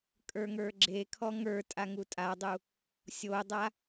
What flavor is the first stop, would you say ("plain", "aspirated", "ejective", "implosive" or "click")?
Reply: ejective